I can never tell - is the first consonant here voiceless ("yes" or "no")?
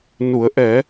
no